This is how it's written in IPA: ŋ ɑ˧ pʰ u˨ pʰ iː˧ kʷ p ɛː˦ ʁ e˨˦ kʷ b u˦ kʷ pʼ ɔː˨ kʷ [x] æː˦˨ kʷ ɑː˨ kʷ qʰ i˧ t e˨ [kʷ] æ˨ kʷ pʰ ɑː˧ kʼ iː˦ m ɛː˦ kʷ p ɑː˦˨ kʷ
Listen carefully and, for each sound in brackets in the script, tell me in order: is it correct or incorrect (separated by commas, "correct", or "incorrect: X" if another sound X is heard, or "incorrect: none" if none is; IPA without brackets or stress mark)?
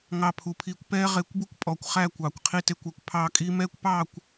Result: incorrect: χ, correct